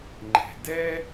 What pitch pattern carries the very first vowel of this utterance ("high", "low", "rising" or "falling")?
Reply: low